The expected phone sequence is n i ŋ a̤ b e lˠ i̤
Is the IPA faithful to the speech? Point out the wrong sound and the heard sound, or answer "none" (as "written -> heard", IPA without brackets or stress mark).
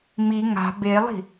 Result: n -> m